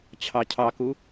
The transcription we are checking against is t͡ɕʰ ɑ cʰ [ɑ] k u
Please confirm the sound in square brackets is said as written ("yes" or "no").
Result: yes